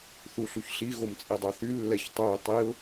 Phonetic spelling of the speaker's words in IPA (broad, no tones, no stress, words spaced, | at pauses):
θuɬuçɬi ɣomt͡sʼidˤœθy lːɛçtˤœɪ̯ tˤiʊ̯